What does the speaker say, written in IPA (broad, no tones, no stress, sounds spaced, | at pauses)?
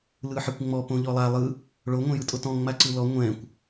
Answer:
l ɯ ħ ɛ kʷ ŋ͡m ɔ p õ ʎ ɔ lˠ a lˠ ɯ | ɭ o ŋʷ ɛ̃ j ɯ tʼ o t ɔ̃ ŋ͡m a ǀ ɯ l ɔ ŋʷ ɛ̃ kʷ